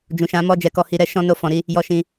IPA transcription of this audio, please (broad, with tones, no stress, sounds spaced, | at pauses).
d͡ʒ ũ˨ ʃ ã˨˦ m ɔ˦˨ d͡ʒ ɛ˧ k ɔ˧ h i˧ ɾ ɛ˦ ʃ ɔ̃˦ n o˦˨ f ɔ̃˨˦ ɾ i˦ | j ɔ˧ ʃ ĩ˧